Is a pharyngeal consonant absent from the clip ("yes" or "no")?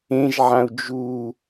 no